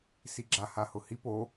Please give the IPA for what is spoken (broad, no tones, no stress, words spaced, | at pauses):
siɡ͡ǁa hahʊhip o